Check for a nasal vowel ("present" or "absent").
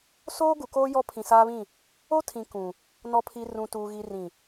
present